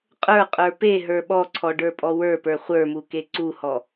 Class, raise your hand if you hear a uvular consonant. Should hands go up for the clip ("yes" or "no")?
yes